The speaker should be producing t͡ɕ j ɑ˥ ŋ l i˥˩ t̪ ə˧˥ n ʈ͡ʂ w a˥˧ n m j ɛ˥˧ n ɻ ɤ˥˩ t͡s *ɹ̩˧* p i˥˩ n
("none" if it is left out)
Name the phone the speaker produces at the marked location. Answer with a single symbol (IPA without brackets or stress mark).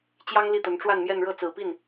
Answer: ɹ̩˨˩